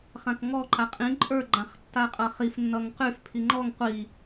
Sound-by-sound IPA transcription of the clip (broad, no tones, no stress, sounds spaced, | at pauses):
χ ã k ŋ ɔ ǃ a qʼ ĩ ǃʼ ə˞ ɡ͡ǃ ã χ tː a qʼ ʌ χ i f nː ʌ ŋ q y f pʰ i ŋ͡ǃ ɔ ŋ qʷ i